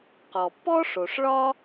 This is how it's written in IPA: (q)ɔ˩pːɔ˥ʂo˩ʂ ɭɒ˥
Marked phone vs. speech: correct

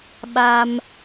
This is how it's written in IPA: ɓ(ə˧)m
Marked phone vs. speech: incorrect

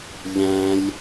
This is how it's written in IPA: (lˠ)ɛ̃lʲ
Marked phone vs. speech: incorrect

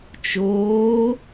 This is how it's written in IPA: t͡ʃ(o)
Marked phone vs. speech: incorrect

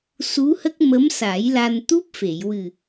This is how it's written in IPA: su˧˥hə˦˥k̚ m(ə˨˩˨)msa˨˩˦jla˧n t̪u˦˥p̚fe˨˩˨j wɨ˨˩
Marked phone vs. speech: incorrect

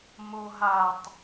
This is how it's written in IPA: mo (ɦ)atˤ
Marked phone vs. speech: correct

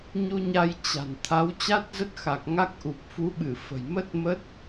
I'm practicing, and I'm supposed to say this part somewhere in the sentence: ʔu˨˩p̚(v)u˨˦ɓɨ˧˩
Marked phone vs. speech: incorrect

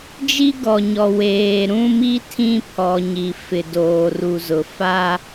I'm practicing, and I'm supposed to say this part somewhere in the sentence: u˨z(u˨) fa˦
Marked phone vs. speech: incorrect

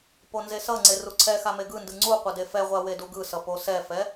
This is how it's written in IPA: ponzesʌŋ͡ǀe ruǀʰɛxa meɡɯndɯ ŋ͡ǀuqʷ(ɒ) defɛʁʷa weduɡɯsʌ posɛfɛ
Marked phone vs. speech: incorrect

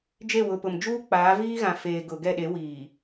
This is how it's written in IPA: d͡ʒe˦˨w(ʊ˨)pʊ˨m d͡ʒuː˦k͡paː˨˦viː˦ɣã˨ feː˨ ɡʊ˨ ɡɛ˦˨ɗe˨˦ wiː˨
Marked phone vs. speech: correct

